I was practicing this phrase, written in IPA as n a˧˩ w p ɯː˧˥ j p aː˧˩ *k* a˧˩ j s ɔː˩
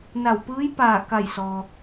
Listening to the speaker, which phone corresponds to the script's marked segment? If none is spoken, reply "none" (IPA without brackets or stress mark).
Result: k